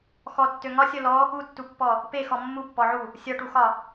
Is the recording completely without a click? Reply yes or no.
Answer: yes